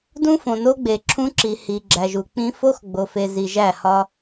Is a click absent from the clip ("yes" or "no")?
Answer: no